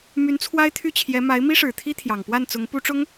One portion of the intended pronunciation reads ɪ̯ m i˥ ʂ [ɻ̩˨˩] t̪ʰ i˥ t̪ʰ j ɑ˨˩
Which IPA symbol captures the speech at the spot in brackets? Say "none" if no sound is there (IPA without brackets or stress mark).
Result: ɻ̩˨˩